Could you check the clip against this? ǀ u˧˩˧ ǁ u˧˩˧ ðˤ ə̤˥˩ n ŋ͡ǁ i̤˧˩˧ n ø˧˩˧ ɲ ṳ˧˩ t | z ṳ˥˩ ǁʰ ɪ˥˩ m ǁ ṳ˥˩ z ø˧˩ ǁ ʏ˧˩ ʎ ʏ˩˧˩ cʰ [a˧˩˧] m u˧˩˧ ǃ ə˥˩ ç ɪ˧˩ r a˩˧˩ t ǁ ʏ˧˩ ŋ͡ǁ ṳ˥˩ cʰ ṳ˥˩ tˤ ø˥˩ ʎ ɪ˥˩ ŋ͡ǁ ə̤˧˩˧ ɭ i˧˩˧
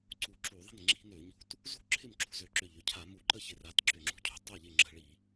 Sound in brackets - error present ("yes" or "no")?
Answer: no